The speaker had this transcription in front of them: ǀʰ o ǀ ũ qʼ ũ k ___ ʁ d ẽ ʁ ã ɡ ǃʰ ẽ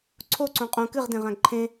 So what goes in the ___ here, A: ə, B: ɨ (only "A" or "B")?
B